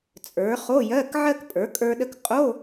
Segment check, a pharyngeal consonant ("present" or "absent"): present